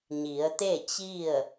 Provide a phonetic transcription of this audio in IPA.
ɲ i˩˧ ə̯ t̪ e˥˨ t͡ɕ i˥˨ ə̯

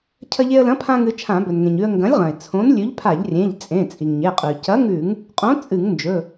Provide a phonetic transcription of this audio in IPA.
cʰ ɐ˧ ʎ e˧ ə̯ l ɐ̃˨˥ pʰ ã˧ ŋ ɨ˧ t͡ʃʰ ã˧˩˧ b ɵ˩ n ŋ ẽ˩ ɲ ʉ˧ ə̯ ŋ ɡ ɐ̃˨˥ lʲ ʁ ɐ̃˩ ɪ̯ t͡sʰ õ˨˥ n lʲ ʉ˨˥ ʎ pʰ a˧˩˧ ʎ rʲ ẽ˩˧˩ ʎ t͡sʼ ẽ˩˧˩ t͡sʼ i˩ ŋ ɲ e˩˧˩ qʼ ʉ˩ c ɐ˨˥ ŋ ʉ˧˩˧ ŋ | qʼ õ˨˥ t͡sʼ ɨ˧˩˧ ŋ n d͡ʒ ɵ˩˧˩

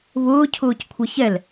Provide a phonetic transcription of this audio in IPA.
β ʊː cʰ ʊː c kʷʰ ʌ ç ɛ l

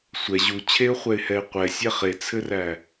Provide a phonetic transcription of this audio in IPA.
sʷ ɛ ʑ u t͡ɕʰ e ʊ̯ χʷ ɛ ɪ̯ h ɛ ɪ̯ qʷ ɛ sʲ æ χ e t͡sʰ ɘ r æ

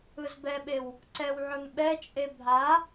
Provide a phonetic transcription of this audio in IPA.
ɯ z b ɛ ɓ e w | ǀ ɛ w ʕ ɵ ŋ ɓ ɛ t͡ʃʼ e bʱ a

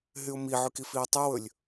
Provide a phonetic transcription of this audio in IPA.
ɦ y ʊ̯ m i ʕ ʉ k i f iː tˤ ʉ w ɵ lʲ

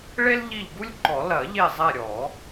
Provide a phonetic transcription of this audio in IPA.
ɭ e˥ l ʎ i˦˨ ʎ ɡ u˥ lʲ ǃ ɔ˨˩˦ l ɐ˨˩˦ ʎ e˦˨ zˤ ɛ˦˨ ɾʲ ɔ˨˩˦

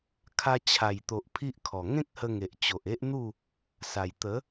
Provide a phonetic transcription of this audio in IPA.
kʰ a˧ t͡ɕʰ a˨˩ j t̪ o˨ ʔ pʰ i˦ ʔ kʰ ɔ˨˩ ŋ ẽ˦ k̚ h ə˧ ŋ e˨ ʔ t͡ɕ o˨ ʔ e˦ ʔ n̪ u˥˧ | s a˨˩ j t̪ ə˨˦

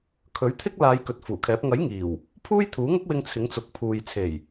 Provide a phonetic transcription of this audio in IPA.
kʰ ɵ˨˥ ɥ t̪ʰ ɪ˥ k̚ l aː˨˧ j k ɵ˨ t̚ f uː˨˩ kʰ ɛː˨˥ p̚ ŋ ɐ˨˥ j ŋ iː˨˩ w | pʰ uː˥ j t̪ʰ uː˨˥ ŋ ʊ˥ k̚ w ɪ˧ ŋ t͡sʰ ɪ˨˥ ŋ t͡s ʊ˨ k̚ pʰ uː˨ j t͡sʰ e˨˩ j

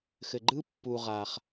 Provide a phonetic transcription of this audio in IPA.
x ɘ˩ ɡ͡ǃ ɯ˥ pː u˩ ʁ a˩ χ

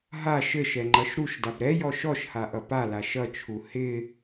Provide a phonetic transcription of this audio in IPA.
ɦ a ʃ ɘ ʃ ɛ ŋ͡ǃ ʌ ʃ ɾ u ʃ d a b ɾ ɛ j ɔ ʃ ɔ ʃ h a ʔ ʌ p a l a ʃ ʌ t͡ʃʰ u h ɪ

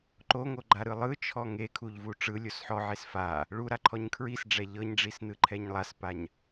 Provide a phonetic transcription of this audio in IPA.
ǃ o ŋ o ɡ͡ǃ a ɾ ɯ lˠ ɯ t͡ʃʰ ɔ ŋ e kʰ u ʎ v u ʈ͡ʂ ɯ lʲ o s ħ ɔ ʕ e s f a | ɭ u ɾ a ǃʰ ɔ ɲ kʰ ɹ i s ɖ͡ʐ ɛ ʎ ɤ ɲ ɖ͡ʐ i s n ɯ ǃʰ ɛ ɲ lˠ a s p a ɲ

